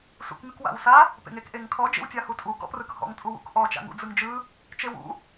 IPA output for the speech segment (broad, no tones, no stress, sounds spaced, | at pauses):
s ṵ k ŋ ɯ k w a̰ w s a | p ḛ ŋ e k ʔ e ŋ kʰ ɔ d͡ʒ ḛ w tʲ a h u tʼ u ɡ ɔ̰ p r ɯ k h ɔ̰ ŋ tʼ u w ṵ k ʔ ɔ t͡ʃ a̰ ŋ ṵ d͡z ɯ ŋ d͡ʒ ɯ | t͡ʃ e w ṵ